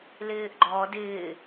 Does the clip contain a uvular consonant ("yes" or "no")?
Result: no